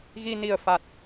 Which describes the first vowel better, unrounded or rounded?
unrounded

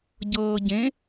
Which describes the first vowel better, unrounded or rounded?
unrounded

